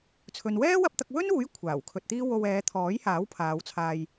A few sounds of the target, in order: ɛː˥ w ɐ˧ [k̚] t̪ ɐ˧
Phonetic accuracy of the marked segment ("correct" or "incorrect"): incorrect